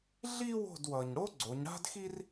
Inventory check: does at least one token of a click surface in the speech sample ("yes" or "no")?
yes